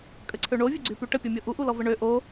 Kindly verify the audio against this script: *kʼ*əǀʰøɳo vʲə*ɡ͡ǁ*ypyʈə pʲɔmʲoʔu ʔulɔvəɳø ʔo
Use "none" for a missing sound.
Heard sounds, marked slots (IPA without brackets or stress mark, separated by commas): kʼ, ɡ͡ǀ